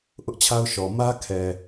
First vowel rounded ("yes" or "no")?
yes